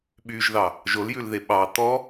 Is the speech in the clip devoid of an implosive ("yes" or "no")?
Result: no